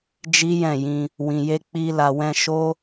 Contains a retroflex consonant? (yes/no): no